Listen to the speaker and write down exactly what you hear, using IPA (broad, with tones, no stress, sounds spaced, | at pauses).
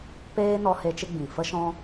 p eː˧ n ɔ˧ h e˧ t͡ʃ ɨ˧ ɡ͡b ĩ˨ f ə˦ ʃ ɔ̃˦